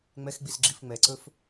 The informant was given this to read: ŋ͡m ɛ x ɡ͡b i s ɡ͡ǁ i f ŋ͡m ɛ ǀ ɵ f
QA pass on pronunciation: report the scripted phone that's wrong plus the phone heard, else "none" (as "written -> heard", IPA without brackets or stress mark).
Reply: none